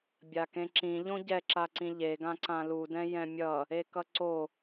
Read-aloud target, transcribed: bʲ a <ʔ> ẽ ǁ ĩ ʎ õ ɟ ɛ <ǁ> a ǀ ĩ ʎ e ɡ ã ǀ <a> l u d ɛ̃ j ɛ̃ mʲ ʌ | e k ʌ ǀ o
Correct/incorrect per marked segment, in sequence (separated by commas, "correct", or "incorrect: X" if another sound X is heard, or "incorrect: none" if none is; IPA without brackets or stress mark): incorrect: k, correct, incorrect: ã